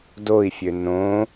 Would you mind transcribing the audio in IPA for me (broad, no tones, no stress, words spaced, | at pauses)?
doi̯fʲø nõ